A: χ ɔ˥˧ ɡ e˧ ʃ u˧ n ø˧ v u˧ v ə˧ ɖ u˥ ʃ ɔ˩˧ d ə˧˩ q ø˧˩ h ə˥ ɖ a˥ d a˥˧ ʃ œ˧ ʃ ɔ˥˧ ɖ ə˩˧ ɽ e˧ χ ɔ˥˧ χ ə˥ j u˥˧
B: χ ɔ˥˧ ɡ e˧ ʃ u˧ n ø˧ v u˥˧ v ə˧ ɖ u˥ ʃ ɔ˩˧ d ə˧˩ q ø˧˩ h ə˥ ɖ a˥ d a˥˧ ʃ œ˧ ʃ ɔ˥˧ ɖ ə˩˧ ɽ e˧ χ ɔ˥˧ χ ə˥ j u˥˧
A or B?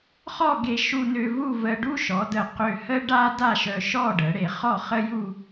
B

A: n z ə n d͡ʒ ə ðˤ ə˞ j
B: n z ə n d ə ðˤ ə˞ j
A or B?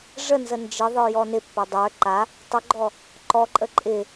A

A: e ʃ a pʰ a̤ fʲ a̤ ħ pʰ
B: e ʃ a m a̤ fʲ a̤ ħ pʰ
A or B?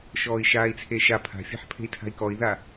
A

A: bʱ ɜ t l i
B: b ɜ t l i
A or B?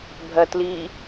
A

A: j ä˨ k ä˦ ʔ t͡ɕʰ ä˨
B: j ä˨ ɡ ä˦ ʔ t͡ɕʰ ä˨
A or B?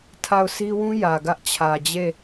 B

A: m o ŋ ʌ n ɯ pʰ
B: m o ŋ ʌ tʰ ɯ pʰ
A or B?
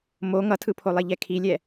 B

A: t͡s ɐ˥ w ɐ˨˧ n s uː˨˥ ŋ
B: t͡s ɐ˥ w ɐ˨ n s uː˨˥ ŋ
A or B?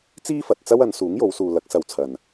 A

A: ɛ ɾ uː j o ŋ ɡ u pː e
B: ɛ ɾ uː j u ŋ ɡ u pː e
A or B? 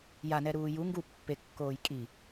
B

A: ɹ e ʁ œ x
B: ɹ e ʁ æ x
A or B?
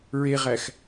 B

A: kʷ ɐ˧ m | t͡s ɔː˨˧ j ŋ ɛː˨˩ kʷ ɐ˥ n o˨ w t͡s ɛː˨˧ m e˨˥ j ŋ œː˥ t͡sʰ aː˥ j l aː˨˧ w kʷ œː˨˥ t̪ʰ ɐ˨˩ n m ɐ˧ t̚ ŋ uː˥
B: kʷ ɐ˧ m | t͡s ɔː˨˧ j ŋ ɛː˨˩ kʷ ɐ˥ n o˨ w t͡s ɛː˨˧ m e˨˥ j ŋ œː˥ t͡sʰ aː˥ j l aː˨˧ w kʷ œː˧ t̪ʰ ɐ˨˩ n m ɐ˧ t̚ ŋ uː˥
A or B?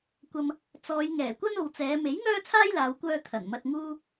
B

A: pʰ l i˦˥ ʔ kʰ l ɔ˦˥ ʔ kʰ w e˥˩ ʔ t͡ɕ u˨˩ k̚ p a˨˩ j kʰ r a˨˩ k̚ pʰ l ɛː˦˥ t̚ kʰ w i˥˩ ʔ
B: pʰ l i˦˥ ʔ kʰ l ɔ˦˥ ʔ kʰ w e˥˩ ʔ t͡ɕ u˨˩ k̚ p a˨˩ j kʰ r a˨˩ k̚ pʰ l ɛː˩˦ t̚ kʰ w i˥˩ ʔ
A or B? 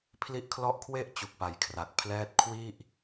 A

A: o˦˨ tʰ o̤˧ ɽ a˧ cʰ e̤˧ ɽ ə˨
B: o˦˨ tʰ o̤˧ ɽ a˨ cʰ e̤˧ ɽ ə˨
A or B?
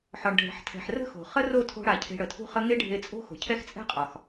B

